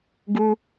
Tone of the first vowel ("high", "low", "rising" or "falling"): high